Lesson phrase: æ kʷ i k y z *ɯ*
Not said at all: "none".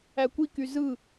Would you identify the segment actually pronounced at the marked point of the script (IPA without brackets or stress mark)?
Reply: ɯ